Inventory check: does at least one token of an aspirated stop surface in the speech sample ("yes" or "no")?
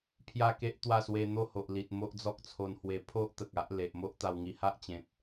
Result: yes